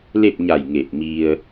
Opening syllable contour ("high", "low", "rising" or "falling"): falling